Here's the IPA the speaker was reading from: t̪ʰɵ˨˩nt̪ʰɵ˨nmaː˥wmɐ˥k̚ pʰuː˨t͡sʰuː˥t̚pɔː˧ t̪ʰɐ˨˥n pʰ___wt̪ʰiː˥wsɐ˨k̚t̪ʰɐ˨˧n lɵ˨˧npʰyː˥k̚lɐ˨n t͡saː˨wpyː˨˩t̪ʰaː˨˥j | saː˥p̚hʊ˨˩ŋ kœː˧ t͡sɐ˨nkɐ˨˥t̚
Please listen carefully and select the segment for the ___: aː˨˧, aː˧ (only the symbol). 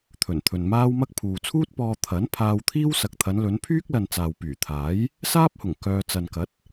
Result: aː˧